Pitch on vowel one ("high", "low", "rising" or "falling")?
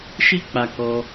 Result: high